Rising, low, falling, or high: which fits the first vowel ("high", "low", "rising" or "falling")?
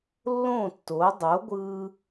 falling